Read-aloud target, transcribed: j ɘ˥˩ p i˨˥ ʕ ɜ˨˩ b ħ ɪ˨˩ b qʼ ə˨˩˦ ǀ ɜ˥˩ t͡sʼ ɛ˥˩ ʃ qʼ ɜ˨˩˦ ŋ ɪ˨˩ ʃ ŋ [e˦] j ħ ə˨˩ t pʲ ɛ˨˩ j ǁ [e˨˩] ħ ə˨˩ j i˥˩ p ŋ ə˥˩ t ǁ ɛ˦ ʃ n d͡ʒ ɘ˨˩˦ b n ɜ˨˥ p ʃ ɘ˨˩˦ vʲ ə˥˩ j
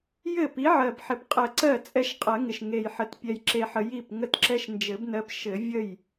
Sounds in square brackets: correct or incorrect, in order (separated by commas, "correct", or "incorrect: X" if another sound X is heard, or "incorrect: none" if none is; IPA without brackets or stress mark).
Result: incorrect: e˨˩, correct